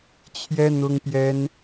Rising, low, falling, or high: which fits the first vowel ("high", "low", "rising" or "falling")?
high